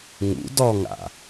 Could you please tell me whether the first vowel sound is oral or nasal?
oral